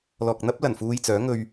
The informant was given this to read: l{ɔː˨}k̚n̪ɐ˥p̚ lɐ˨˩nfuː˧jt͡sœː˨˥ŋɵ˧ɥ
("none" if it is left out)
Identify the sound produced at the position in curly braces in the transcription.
ɔː˨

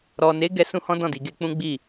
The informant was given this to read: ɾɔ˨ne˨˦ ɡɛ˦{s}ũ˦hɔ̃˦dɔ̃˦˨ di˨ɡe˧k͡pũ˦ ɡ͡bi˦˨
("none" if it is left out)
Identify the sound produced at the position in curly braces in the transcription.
s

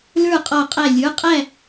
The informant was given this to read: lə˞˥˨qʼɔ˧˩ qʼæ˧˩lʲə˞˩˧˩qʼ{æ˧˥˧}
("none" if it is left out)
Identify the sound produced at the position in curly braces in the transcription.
æ˥˨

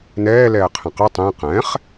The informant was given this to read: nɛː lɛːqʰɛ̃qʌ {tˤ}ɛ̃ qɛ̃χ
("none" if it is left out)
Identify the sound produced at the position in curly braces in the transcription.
tˤ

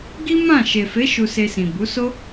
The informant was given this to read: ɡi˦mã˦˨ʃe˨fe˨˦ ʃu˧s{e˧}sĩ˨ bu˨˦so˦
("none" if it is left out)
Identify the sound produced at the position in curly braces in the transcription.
e˧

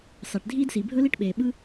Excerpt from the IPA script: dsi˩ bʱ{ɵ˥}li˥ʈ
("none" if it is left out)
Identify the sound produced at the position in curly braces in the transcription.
ɵ˥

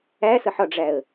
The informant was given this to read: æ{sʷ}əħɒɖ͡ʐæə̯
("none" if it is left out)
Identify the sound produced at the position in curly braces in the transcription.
s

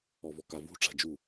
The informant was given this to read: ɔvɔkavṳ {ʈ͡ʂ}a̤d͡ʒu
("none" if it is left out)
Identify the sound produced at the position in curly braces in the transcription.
ʈ͡ʂ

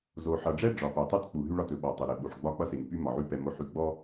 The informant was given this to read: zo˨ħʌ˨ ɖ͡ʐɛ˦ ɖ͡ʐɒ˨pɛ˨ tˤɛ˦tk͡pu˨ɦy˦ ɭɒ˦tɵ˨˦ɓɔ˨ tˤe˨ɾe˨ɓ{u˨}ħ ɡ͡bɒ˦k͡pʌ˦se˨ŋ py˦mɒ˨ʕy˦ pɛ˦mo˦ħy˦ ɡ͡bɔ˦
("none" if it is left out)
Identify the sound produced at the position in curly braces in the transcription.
u˨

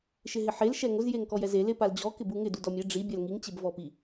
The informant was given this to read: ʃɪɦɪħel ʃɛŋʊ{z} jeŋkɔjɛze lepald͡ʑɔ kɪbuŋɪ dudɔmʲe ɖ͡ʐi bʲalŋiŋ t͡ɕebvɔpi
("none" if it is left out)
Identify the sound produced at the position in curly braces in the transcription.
z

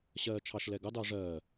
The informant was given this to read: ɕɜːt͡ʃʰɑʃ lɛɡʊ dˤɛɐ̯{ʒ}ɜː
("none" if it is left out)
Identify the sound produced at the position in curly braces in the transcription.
ʐ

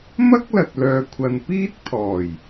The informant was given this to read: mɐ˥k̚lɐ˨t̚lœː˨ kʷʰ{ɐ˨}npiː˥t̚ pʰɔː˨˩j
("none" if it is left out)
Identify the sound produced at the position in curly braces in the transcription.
ɐ˨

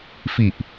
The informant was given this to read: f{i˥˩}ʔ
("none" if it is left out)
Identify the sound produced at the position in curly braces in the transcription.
i˨˩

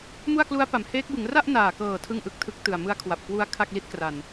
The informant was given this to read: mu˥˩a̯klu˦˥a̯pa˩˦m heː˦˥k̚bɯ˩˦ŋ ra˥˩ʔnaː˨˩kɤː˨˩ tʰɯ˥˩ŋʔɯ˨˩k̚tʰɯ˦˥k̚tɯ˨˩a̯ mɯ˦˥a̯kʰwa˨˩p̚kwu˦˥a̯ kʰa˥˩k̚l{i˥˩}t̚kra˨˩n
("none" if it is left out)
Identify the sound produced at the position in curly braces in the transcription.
i˦˥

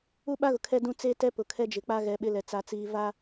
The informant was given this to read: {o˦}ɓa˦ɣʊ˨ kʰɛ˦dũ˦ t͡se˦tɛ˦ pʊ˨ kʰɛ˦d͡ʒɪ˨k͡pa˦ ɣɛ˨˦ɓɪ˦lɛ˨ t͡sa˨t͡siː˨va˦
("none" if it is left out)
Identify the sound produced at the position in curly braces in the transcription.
u˦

